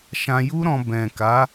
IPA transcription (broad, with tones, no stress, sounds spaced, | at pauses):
ʃ ã˧ j u˦ ɾ ɔ̃˧ b ɛ̃˨ k a˨˦